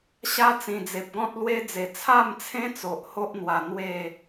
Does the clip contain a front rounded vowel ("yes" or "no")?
no